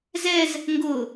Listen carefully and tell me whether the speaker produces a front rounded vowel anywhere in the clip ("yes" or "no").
no